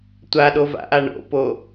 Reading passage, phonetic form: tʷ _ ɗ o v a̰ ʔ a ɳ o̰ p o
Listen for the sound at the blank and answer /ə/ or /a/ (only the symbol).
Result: a